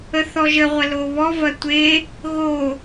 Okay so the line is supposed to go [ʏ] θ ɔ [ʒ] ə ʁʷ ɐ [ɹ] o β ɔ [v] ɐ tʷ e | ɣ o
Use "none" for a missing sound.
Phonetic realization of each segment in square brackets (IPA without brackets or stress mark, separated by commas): ə, ʒ, l, v